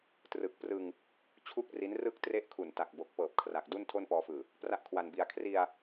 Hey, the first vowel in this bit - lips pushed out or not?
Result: no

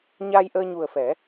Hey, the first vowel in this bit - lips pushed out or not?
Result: no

